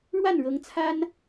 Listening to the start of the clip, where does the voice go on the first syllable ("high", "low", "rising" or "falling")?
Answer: falling